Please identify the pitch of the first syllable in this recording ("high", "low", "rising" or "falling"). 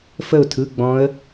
falling